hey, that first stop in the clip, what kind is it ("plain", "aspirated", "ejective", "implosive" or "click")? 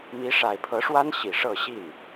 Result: aspirated